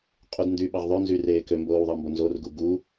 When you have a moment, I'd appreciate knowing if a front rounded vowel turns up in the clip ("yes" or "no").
yes